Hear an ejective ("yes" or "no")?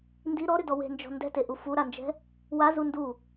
no